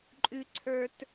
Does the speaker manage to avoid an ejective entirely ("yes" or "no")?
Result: no